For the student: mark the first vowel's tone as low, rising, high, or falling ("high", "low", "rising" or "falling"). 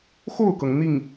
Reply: falling